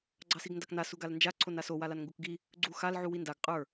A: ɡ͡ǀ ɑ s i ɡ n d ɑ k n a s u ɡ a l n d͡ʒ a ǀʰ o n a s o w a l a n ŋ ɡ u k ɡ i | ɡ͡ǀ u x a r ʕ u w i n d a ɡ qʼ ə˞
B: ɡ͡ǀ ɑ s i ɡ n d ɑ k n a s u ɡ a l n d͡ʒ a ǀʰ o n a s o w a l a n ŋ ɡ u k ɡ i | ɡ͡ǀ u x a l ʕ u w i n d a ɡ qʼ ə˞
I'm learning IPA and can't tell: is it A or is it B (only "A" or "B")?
B